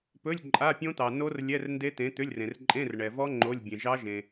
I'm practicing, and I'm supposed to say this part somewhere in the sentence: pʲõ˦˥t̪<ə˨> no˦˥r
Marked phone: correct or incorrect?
incorrect: ɑ˨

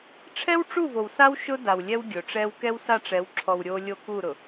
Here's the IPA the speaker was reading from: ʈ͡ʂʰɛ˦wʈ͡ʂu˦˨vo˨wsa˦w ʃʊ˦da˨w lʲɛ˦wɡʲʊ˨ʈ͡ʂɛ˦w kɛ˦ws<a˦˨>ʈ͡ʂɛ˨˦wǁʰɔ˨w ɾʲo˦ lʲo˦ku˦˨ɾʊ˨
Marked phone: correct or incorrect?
correct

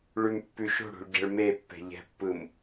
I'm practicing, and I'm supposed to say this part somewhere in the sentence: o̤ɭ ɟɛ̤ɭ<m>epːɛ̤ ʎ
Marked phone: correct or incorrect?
correct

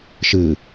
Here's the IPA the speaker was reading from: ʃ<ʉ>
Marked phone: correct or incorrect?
incorrect: ɨ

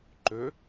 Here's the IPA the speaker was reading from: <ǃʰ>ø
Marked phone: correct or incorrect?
incorrect: ǃ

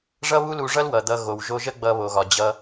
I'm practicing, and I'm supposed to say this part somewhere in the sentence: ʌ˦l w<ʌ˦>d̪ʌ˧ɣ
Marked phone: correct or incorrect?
incorrect: ʌ˨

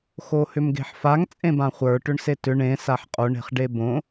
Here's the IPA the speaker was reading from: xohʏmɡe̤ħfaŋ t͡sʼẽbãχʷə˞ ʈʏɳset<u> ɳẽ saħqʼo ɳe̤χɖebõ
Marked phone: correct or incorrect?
incorrect: ʏ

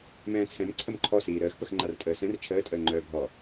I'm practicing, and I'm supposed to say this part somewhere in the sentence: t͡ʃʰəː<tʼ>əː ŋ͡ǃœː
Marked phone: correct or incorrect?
correct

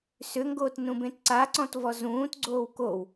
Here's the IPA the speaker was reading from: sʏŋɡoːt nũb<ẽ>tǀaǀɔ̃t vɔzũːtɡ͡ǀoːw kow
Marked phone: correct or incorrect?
correct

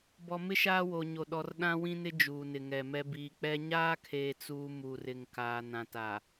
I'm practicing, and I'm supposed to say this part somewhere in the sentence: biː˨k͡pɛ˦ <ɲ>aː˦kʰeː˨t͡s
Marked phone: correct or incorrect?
correct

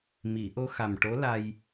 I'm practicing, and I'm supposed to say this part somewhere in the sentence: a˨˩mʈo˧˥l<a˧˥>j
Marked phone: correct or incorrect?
incorrect: a˧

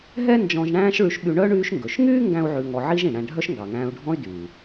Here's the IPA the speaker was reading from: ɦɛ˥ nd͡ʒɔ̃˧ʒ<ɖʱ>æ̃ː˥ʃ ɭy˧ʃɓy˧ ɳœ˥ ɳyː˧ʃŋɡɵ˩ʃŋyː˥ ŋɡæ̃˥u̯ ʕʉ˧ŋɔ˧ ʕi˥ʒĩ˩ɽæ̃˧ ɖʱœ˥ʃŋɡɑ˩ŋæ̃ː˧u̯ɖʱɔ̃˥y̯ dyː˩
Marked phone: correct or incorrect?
incorrect: ɳ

